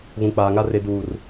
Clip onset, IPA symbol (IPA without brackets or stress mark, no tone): ɣ